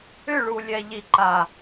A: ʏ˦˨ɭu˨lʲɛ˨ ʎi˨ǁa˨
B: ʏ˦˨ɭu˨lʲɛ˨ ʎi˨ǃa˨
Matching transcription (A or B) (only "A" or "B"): B